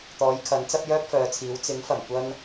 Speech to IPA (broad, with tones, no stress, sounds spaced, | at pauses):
t̪ ɔː˨˥ j kʰ ɐ˨˥ n t͡s ɐ˥ p̚ j œː˥ p̚ f œː˨˧ t͡sʰ iː˨˥ w t͡s ɪ˨˥ ŋ f ɐ˨˩ m kʷ ɐ˥ n